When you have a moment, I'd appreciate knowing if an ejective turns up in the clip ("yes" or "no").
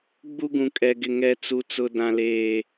yes